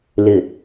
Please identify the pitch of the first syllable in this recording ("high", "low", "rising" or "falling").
low